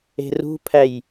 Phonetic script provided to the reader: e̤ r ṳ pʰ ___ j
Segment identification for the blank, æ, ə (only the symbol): æ